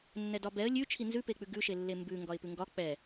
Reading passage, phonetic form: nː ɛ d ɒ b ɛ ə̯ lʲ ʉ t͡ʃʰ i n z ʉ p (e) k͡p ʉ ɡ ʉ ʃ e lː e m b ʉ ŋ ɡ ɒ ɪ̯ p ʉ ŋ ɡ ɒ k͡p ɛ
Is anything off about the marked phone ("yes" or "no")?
no